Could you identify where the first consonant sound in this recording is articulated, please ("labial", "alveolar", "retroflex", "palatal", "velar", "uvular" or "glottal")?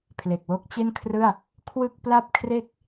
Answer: labial